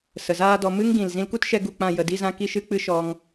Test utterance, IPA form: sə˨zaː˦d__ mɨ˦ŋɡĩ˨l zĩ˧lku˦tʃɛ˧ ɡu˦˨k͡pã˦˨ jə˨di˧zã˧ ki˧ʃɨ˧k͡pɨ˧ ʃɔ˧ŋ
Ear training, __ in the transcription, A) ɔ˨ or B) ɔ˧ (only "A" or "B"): B